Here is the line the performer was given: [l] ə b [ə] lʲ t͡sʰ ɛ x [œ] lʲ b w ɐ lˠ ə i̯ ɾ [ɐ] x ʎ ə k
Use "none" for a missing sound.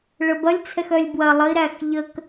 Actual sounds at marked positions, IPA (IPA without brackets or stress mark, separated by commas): ɭ, ɐ, œ, æ